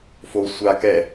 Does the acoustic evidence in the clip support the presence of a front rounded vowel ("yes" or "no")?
no